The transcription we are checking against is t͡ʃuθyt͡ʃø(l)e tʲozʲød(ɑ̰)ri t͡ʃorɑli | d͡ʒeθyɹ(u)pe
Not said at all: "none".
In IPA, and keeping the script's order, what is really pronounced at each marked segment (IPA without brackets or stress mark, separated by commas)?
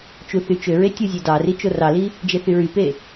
ɹ, ɑ, y